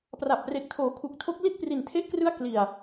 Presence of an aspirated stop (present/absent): present